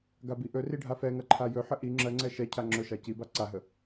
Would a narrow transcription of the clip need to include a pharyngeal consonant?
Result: yes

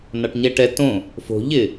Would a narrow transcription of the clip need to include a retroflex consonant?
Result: yes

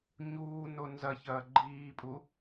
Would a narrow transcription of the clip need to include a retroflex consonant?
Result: no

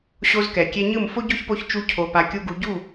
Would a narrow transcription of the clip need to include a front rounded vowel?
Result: no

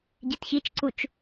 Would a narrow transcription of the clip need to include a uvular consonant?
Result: no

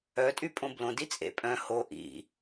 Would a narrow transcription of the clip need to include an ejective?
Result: yes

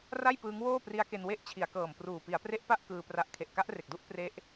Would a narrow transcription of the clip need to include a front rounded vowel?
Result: no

